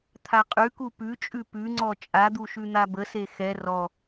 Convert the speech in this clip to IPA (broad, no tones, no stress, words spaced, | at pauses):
t̪ʰaqʼʉku pʉt͡ʃʼʉ pʉŋ͡ǀɔ t͡ʃʼad̪u ʃʉn̪abəse xɛ rɔ